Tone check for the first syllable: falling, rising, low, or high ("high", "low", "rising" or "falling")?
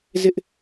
high